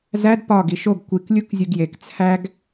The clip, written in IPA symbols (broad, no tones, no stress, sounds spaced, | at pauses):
z æ d p ɒ ɡ i ʃ o ɡ kʷ i k lʲ u k zʲ u ɡ j e k t͡sʰ æ ɡ